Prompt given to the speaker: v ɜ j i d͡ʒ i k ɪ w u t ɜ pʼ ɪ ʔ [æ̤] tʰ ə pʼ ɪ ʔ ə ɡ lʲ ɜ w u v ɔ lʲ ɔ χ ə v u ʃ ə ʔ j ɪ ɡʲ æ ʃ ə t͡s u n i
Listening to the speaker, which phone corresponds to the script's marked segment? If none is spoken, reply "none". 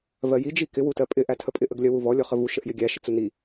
æ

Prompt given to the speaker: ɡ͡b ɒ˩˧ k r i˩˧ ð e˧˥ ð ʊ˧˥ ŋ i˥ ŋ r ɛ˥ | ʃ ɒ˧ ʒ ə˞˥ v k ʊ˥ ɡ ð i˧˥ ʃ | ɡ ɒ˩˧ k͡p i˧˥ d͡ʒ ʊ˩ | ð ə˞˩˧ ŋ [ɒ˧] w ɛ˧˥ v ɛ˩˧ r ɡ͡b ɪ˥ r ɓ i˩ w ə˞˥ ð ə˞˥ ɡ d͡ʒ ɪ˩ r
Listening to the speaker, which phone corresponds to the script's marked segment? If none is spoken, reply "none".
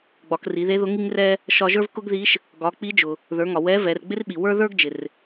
ɒ˩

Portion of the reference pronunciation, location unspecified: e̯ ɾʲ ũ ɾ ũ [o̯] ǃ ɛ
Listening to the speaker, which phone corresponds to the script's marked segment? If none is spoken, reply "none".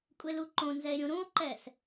o̯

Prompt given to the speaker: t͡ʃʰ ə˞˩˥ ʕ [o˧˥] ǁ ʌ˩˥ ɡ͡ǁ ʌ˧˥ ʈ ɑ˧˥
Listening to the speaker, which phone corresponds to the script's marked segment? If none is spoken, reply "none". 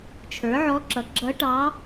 ɔ˧˥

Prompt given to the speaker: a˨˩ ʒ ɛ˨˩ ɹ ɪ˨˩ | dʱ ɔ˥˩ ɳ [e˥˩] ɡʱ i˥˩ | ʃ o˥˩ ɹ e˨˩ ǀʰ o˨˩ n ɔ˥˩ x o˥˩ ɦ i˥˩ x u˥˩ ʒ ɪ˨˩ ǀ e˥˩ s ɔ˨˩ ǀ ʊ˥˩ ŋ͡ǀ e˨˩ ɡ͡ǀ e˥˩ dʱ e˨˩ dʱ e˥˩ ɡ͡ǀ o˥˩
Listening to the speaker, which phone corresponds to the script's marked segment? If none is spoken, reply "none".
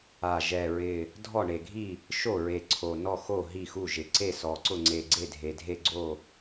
e˨˩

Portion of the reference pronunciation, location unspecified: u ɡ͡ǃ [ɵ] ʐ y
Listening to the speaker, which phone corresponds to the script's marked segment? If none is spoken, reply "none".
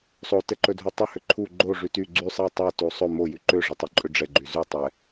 o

